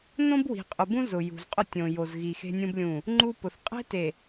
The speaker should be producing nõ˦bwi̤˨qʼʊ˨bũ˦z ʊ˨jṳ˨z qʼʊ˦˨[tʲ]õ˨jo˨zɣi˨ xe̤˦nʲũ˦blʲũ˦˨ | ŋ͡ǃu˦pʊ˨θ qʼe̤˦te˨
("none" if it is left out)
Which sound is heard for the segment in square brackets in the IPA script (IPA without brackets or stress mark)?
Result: tʲ